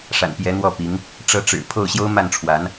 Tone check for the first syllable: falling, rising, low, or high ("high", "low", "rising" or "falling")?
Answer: low